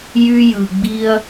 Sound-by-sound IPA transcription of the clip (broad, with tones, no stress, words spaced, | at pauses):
jy˦jɯ˧ ɡ͡bi˦ɐ̯